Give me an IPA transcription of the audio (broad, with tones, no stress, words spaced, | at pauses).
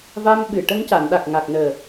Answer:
va˧mɓɨ˨˩ ʈə˧ŋca˨˩˨nɗa˨˩k̚ ŋa˨˩k̚nəː˨˩